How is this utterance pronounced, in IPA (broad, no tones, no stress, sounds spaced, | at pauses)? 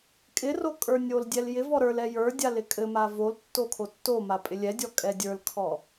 kʼ ɪ r o kʼ ə˞ nʲ o l dʲ ɛ l j ɪ v ɔ ɾ ə˞ l ɛ j ə˞ dʲ a l ɪ kʼ ɘ m a v o l tː o kʰ o tː o m a pʼ ɪ lʲ ɛ dʲ ɔ kʼ ɛ dʲ ə˞ l kʰ ɔ